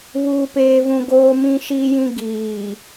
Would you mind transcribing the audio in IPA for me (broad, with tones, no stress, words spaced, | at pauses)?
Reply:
βuː˦peː˦vũ˦ ɡoː˦mĩ˦ʃi˦jĩ˦ ɡiː˨